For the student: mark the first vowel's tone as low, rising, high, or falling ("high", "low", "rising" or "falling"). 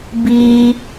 high